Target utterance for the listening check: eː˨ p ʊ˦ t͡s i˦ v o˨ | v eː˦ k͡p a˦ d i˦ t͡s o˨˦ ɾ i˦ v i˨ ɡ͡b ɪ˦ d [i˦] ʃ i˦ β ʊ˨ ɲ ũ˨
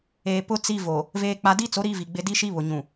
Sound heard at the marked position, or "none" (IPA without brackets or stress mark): i˦